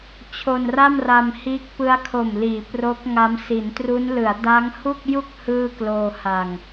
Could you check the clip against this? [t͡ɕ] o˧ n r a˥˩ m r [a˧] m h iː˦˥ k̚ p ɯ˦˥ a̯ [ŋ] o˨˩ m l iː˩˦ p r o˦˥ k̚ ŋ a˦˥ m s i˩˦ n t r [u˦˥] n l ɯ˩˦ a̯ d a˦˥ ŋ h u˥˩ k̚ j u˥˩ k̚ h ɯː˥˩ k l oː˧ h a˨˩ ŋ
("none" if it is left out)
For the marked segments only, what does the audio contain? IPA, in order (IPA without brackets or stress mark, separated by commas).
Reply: t͡ɕʰ, a˧, kʰ, u˦˥